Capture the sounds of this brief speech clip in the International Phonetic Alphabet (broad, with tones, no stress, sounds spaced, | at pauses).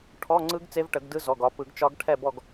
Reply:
ʈʰ ɔ˧˥˧ ŋ͡ǀ ɯ˦˥ ɡ t͡s e˦˥ v ʈ ə˨˩˦ ɡ d ɯ˦˥ z ɔ˩˧˩ ɡ ɒ˨˦ p ɯ˨˩˦ ɡ t͡ʃ ɒ˦˥ ɡ ʈʰ ɛ˥˨ b ɔ˥˨ ɡ